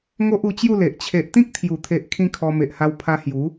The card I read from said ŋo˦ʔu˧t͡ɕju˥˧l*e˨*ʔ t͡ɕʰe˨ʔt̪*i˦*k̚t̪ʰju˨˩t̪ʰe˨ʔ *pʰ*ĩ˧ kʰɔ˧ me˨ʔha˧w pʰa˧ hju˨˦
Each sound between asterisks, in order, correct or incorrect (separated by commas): correct, incorrect, incorrect